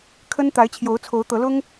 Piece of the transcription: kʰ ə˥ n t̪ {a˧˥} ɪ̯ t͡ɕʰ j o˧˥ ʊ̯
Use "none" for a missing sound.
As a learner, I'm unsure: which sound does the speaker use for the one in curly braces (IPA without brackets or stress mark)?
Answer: a˧˥